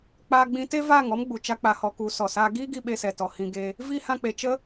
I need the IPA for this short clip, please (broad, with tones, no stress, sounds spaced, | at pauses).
k͡p aː˧ ɡ͡b ĩ˧ t e˦ v aː˦˨ ŋ ɔ˦ m ɡ͡b u˨ t͡ʃ a˦ k͡p a˧ h ɔ˧ k u˨˦ s ɔ˨ s aː˦ ɡ iː˦ ɡ i˧ ɓ e˧ s ɛ˨ t ɔ˨ h ĩ˧ ɡ e˧ | v i˦ h ã˧ k͡p e˨ t͡ʃ ə˦